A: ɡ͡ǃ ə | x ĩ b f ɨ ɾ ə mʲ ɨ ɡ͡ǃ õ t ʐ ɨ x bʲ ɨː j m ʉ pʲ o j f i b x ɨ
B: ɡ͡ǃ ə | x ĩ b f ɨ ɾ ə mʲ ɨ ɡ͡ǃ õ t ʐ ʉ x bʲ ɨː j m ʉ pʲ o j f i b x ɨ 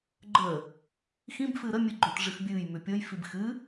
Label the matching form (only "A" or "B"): A